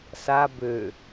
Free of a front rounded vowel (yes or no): no